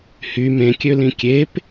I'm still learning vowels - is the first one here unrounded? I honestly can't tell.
no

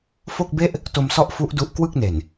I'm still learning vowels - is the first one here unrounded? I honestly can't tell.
no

